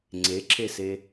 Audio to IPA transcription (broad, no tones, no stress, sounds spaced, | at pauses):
ŋ͡ǀ e ǁʰ e s e